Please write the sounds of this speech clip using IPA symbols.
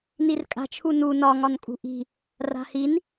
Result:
n i r kʼ a̤ t͡ʃʰ u n u n ɒ ŋ ɒ n kʼ ṳ ʔ i̤ | r a̤ h i n

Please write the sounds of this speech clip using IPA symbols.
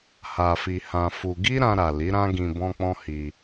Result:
h a˧ f i˧ h ã˧ f u˧ ɡ i˦ ɾ ã˧ ɾ a˨ l i˨˦ ɾ ã˦ ɡ ĩ˧ b ɔ̃˦ k͡p ɔ̃˦ h i˧

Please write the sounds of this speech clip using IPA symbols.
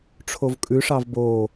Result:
ʈ͡ʂʰ o v kʼ ʉ ʂ ɑ v b o

